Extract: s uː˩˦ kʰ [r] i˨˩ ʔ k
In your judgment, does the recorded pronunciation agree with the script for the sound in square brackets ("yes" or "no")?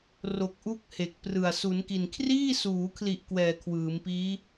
no